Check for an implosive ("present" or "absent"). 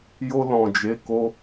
absent